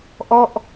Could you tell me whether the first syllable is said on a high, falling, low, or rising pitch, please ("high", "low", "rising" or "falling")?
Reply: falling